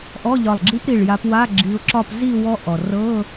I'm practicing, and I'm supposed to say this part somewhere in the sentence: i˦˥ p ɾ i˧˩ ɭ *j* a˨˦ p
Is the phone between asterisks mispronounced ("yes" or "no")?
no